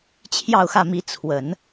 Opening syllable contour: falling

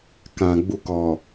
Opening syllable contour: low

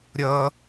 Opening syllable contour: high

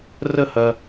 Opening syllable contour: falling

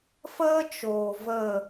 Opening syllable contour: high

